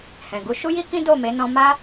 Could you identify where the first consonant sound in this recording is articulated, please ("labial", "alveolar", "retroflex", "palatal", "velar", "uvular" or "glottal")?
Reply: glottal